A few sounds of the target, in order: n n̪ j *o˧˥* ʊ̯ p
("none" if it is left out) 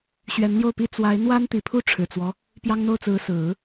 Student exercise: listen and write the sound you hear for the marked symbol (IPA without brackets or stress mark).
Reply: o˥˩